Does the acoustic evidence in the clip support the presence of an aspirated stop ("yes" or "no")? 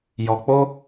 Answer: no